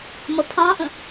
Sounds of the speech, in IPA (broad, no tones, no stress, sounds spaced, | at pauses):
m ʌ pʰ ɑ̃ ʔ ə̃